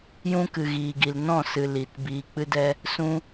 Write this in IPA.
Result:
j ũ˦ k ɨ˨ ɣ iː˨ ɡ i˨ l n ɔ̃˦˨ s ɨ˨ l i˨ t b iː˨ k͡p ɨ˧ d ɛ˧ | s ũ˦

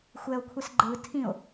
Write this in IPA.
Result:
xʷ ɛ o̯ kʷʰ ɛ s ɡ͡ǃ ɯ tʰ ĩ o̯

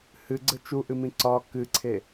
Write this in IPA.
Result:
h ɨ ɡ͡ǀ ə t͡ʃ u ʔ ɨ m ĩ ǀ ɒ k ɨ ǀʰ e

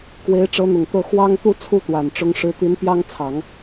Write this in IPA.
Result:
k w e˧˥ ɪ̯ ʈ͡ʂ ɤ˧˥ n̪ ʊ˨˩ ŋ t̪ ɤ˥˩ x w ɑ˥ ŋ t̪ u˥˩ t͡sʰ u˥ t̪ w a˨˩ n ʈ͡ʂ ʊ˧˥ ŋ ʂ ɻ̩˧˥ t̪ i˧˥ n p j ɑ˥ ŋ t͡sʰ ɑ˨˩˦ ŋ

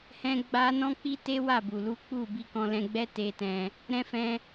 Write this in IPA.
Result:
h ɛ̃˦ ɡ͡b a˦ n ɔ̃˦ k͡p i˦ t e˦ w a˦˨ b u˨ l u˨˦ k͡p u˦˨ b i˧ k ɔ̃˧ l ɛ̃˧ ɡ͡b ɛ˦ t e˧ t ɛ̃˧ | ɾ ɛ̃˦ f ɛ̃˦

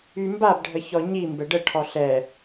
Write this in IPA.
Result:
y m b a b ɖʱ ə ç ɔ ɲ i m b ɛ ɖ ə ʈʰ ɔ ɬ ɛ

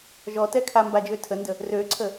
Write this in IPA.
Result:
ʒ ɔ t ɛ kʰ a m b a d͡ʒ ø tʰ ə n d ə | r ø ǀʰ ə

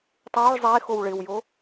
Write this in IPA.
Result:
tˤ uː ɭ zˤ eː x o w ɭ ɪː w j oː

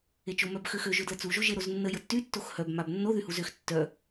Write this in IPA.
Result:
e t͡ʃ o m œ b x ø x ø ʒ ø d l ə t͡s u ʒ o ʒ e ɾ o z nː ə j ə tː y tː o x h œ b m a b nː o ð y h u z ø x tː œ

